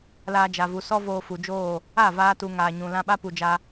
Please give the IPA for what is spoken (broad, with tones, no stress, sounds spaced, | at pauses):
l aː˧ d͡ʒ a˨ v u˨ s ɔ˦ v oː˧ f u˨ d͡ʒ oː˦˨ | a˦˨ v aː˧ t u˨ ŋ aː˨ ɲ ũ˨ l ã˧ ɓ a˦ p u˨ d͡ʒ a˧